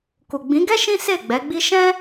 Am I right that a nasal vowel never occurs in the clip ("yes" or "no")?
no